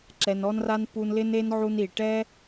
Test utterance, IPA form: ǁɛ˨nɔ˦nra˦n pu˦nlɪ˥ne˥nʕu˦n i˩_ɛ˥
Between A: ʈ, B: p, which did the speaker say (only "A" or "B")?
A